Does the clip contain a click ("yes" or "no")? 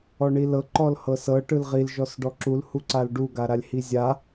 yes